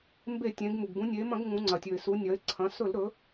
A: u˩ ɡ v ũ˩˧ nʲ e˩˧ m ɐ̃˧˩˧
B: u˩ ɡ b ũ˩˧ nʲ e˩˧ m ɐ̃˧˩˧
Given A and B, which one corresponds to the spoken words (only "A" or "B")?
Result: B